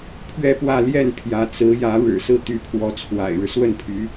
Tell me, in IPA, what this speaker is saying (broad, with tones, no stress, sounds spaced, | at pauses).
pʰ ɥ ɛ˥˧ p w ä˥˧ l j ɛ˥˩ n pʰ j ä˧˥ t͡s ɹ̩˧˥ j ä˧˥ ɻ ɻ̩˨˩ s ɹ̩˥˩ t̪ y˧˥ pʰ w ɔ˧˥ t͡sʰ w a̰˨˩ ɪ̯ ɻ ɻ̩˦ s w ə˥˩ n pʰ y˧˥